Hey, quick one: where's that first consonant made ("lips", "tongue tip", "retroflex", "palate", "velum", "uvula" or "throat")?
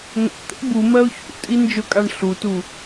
velum